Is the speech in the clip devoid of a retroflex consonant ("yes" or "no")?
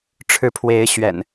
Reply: no